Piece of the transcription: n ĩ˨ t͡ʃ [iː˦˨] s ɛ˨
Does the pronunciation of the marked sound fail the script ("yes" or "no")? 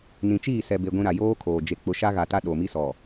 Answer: no